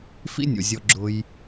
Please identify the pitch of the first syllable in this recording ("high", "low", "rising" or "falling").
high